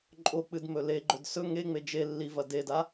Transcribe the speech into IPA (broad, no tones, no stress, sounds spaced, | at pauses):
ǃʼ o k͡p ɨ d m ɵ l e ɡ͡ǃ ɵ d s ɵ ŋ e ŋ͡m e d͡ʒ e lː i v ɐ d e d a